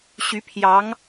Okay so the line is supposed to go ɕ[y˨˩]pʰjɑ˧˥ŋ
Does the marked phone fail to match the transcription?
yes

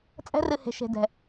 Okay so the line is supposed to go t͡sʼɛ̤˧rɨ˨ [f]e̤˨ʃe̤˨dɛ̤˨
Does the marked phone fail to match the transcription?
yes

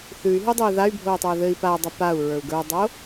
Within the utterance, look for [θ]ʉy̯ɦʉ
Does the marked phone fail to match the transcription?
no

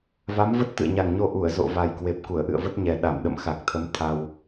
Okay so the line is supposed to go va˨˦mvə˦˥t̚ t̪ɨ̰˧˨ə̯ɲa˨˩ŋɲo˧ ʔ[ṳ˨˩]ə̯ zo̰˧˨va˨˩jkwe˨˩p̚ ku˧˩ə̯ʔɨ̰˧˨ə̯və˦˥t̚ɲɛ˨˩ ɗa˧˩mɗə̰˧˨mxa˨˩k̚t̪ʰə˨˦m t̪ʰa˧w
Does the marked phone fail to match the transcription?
yes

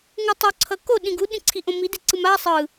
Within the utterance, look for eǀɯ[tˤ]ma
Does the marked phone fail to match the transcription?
yes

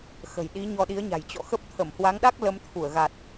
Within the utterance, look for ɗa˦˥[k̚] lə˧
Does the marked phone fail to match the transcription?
no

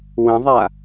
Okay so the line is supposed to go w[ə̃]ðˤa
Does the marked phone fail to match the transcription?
no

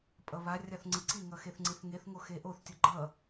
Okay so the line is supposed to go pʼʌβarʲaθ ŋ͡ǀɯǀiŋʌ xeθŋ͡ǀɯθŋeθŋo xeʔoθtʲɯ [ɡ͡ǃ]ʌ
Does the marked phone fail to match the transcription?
no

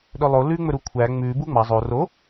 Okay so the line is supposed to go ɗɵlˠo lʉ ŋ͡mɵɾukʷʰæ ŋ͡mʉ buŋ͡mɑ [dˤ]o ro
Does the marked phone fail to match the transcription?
yes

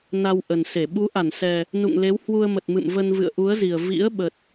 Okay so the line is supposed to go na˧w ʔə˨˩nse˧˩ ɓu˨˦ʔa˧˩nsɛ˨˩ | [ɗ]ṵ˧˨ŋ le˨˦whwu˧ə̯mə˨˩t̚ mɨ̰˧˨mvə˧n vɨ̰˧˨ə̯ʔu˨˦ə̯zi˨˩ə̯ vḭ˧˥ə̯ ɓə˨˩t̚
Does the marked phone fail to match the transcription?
yes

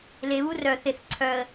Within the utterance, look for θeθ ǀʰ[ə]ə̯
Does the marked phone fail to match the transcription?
yes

